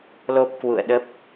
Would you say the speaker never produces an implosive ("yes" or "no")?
no